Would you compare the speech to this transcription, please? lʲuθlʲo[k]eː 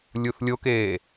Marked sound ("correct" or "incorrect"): correct